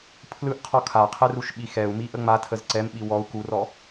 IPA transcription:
pʰ l ɯ ʔ qʰ ɔ kʰ a qʰ ɛ r u ʃ ɓ i x ɛ u̯ m i ʔ ə ŋ͡m a tʰ ə z ǀ ɛ m ɓ i w ɔ u̯ k u r ɔ

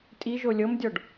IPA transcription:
tʼ i ʒ o lʲ ɤ m dʲ ɔ ɖ

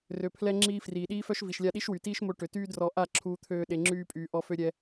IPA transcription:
r ø˨ pʰ l ɛ˧ ŋ͡ǁ iː˧ f r iː˨ ɗ iː˦ f œ˦ ʃ v i˨ ʃ lʲ a˧ ɗ i˦ ʃ w y˨ t iː˦ ʃ m o˧ ʈ ø˨ t yː˦ d r ɔ˧ ʔ a˦˨ ǁʰ uː˧ t̪ʰ øː˧ ɗ e˧ ŋ͡ǁ yː˦ pʼ yː˧ ʔ ɔ˦ f ø˦ ɾʲ ɛ˦

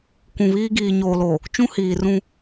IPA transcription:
kʷ ũ˨ β iː˦ ɡ iː˨ ɲ oː˨ l oː˨ | t͡ʃ ũ˦ h iː˨ r ũ˦

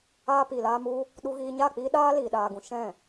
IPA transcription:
aː˧ p i˨ l aː˧ m u˧ | ɗ u˧ ɣ iː˧ ɲ a˦˨ k͡p iː˦ ɗ aː˦ l iː˨ ɗ aː˨ ɡ ũ˨ ʃ ɛ̃˦˨

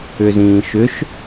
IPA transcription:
ʏ z ĩː ʃ ʏ ʃ

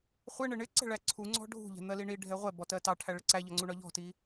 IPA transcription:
χʷ ɪ ɳ ɪ ɳ ɪ ǀ ɛ̤ ɭ æ ǀʰ u ŋ͡ǀ ɔ̤ ɖʱ ṳ ʎ ɛ̤ n̪ ɜ l i ɳ i ɖʱ ɛ ʁʷ ɛ b ɔ t ɜ t ɑ ʈʰ æ ɭ ɪ ǀ æ ʎ ɒ ŋ͡ǀ u ɳ ɒ ʎ ɔ̤ t i

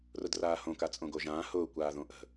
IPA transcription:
r ʊ d r aː h õ k a t͡sʼ õ ɡ o ʒ ãː h ʊː kʷ aː ð õ ʔ ə̤

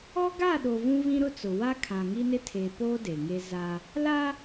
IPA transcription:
ɔ˦ ɡ a˦˨ ɗ o˨ v ũ˦ v ĩ˦ ɾ ʊ˦ t͡s ʊ˨ w a˦ kʰ ã˨ ŋ i˦ n ɪ˦ tʰ eː˨ p oː˦ d e˨ ŋ e˦ z a˦ | l a˦

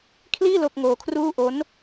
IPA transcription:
kʰ l iː˥˩ l o˥˩ k̚ ŋ oː˧ kʰ r uː˥˩ ʔ o˦˥ n

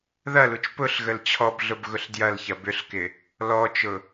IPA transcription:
ð ɐ l u t͡ʃ p ʊ ɬ ɣ ə l t͡ɕʰ ɔ b ɮ ʊ b ɣ ʊ ɬ d j ɐ l ç ɐ b ʏ ɬ k ɪ | l ɔ t͡ʃ ʊ

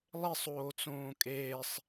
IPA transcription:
lˠ e sˤ oː t͡s õː kʼ eː sˤ

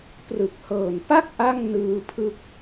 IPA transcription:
p r ɯ˨˩ k̚ h ɤː˨˩ n p a˥˩ k̚ ʔ a˥˩ ŋ n ɯː˧ pʰ ɯ˦˥ k̚

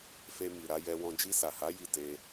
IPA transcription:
f e˧ m i˨ ɾ a˧ j ɛ˧ w ɔ̃˧ d͡ʒ i˧ s a˨ h a˨˦ j i˦˨ t e˧

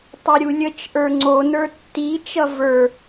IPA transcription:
tˤ ʌ ɾʲ u lʲ ə t͡ʃ ʔ ə˞ ŋ͡ǀ o n ə˞ tː i t͡ʃ ʌ v ə˞

